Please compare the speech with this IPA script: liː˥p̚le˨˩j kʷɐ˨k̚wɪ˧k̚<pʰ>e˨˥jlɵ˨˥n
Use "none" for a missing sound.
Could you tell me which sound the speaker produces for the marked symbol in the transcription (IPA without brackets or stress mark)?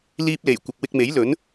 m